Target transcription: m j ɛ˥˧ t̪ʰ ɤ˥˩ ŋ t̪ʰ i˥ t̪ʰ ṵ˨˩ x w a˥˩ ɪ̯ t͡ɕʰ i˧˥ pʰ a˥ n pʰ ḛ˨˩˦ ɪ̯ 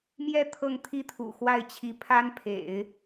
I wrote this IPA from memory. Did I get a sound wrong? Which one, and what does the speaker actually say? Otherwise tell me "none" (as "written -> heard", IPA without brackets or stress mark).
none